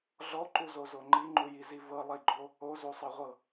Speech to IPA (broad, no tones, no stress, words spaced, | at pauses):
ɮɔǃuzozo ŋ͡ǃiŋ͡ǃujizi vɤlˠiɡ͡ǃo | ozusˤɤʁʷɤ